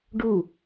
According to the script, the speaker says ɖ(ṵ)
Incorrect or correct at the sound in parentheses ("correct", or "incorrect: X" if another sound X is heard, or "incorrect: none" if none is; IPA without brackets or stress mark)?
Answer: incorrect: u